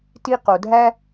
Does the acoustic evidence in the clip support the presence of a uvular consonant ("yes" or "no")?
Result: yes